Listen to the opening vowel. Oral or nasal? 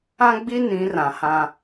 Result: nasal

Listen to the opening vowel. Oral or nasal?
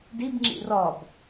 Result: oral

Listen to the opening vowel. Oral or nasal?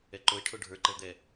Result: oral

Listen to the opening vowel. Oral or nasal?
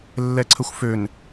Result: oral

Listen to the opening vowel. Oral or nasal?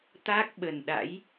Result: oral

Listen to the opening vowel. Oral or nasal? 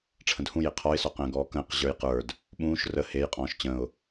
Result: nasal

